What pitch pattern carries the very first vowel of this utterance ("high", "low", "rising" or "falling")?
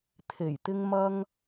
low